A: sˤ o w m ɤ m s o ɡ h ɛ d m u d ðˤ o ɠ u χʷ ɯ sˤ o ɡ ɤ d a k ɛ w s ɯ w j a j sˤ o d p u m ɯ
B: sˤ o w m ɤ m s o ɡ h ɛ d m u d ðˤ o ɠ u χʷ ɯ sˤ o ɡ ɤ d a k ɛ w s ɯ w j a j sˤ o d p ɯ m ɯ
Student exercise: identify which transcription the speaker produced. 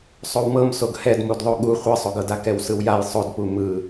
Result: A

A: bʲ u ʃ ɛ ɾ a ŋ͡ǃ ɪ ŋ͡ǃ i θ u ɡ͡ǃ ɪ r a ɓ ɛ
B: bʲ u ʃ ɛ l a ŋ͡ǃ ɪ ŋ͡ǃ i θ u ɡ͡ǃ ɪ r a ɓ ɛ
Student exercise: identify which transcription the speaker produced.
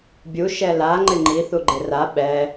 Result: B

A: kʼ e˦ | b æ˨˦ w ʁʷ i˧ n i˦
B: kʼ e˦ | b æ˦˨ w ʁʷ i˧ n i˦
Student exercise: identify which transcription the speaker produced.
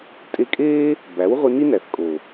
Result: A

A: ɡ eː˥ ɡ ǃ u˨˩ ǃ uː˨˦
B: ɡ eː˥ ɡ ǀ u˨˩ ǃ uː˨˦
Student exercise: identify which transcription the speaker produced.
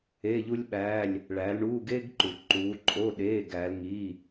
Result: A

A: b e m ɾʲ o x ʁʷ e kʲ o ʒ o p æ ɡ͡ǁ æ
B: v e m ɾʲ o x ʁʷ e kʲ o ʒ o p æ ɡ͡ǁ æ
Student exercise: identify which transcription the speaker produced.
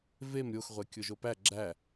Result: B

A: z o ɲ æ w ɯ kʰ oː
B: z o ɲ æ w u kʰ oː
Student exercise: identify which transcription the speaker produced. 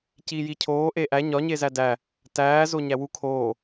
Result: B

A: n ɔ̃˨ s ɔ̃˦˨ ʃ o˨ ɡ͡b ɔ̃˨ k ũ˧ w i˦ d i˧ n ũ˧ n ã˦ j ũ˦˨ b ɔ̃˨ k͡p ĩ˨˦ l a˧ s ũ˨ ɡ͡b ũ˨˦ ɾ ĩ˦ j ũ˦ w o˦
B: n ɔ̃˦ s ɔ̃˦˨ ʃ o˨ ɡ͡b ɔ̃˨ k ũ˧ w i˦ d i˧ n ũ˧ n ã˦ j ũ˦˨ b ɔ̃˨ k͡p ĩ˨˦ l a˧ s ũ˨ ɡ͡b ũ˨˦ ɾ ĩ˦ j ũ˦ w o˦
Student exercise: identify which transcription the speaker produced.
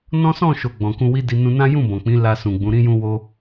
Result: B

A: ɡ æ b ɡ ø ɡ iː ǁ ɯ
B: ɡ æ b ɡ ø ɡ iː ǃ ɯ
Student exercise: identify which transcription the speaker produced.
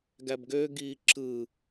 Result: A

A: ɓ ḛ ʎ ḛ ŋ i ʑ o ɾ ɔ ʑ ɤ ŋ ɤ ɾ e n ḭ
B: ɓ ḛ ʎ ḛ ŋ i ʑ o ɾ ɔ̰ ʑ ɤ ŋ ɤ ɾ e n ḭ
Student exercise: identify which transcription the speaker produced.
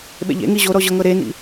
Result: A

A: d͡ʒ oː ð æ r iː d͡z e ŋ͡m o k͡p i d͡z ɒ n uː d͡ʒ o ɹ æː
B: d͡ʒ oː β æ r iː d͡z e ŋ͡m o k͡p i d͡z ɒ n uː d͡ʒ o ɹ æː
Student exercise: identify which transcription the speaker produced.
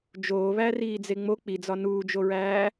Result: B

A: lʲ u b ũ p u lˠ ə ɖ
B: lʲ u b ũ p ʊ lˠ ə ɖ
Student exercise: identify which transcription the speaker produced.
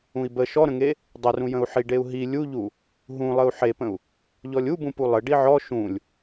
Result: A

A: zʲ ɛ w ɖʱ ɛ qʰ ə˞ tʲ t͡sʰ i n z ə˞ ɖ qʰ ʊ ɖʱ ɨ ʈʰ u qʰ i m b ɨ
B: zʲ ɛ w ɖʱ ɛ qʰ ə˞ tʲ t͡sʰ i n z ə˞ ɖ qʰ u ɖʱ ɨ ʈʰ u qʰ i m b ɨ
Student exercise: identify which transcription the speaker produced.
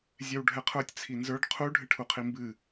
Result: B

